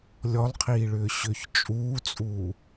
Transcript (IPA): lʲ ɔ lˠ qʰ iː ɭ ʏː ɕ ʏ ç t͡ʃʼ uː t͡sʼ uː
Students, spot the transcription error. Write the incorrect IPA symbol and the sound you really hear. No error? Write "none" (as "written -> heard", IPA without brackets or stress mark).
none